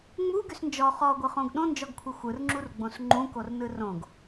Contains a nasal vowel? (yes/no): yes